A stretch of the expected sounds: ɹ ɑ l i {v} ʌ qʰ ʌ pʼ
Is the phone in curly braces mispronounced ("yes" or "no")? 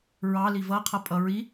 no